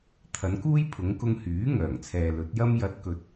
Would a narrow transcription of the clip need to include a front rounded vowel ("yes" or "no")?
yes